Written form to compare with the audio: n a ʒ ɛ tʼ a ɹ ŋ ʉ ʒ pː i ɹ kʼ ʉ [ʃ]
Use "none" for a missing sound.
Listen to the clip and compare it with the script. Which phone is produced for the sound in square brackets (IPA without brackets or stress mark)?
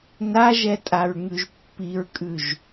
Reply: ʒ